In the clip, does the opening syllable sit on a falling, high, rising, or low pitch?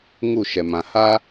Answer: falling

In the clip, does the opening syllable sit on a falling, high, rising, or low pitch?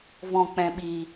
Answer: low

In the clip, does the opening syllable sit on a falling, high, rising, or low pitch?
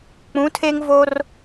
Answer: rising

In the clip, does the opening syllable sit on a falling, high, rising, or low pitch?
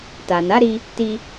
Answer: low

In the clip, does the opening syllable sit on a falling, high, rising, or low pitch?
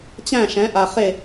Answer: falling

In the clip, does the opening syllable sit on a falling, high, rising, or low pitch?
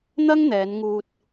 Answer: high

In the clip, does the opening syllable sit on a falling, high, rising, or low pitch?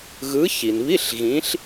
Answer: rising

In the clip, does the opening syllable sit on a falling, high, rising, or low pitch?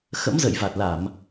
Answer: rising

